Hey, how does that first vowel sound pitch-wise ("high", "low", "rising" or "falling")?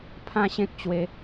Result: high